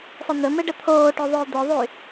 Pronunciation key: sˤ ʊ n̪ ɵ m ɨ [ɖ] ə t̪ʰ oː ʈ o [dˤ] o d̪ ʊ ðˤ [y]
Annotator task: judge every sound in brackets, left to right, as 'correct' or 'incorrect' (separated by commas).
correct, incorrect, correct